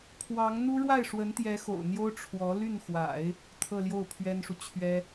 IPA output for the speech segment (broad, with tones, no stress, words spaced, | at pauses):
pʰwɑ˧˥ŋ n̪u˥ ɻwa˥˩ɪ̯ʂwə˧˥nt̪jɛ˧˥ xo̰˨˩ʊ̯n̪jo˥ʊ̯ ʈ͡ʂʰwɔ˧˥ ly˥˩nxwa̰˨˩˦ɪ̯ | t̪ʰɤ˥˧ljo˥˩ʊ̯pʰɥɛ˥nʂu˨ t͡ɕʰɥɛ˥